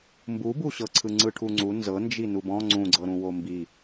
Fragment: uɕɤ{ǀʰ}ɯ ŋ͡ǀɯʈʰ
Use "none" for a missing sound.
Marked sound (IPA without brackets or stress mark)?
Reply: ǀʰ